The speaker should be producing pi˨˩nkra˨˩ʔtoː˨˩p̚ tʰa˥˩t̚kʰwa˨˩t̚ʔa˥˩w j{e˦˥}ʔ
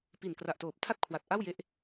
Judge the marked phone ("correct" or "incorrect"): incorrect